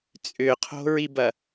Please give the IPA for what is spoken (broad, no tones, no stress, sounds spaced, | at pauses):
t͡sʼ ʏ qʰ o̤ ɹ i b ɐ